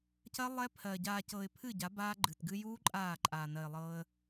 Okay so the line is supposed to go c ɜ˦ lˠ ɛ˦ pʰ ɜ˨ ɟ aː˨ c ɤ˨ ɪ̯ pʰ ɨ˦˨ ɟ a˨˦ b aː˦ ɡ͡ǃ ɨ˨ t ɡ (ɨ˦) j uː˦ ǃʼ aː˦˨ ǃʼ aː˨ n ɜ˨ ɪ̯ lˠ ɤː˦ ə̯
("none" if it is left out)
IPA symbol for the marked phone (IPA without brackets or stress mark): ɨ˦